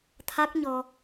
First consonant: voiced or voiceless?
voiceless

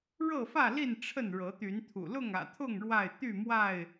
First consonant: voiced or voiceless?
voiced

